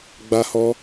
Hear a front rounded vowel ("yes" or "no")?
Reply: no